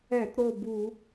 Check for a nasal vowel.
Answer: absent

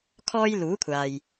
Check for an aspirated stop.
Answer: present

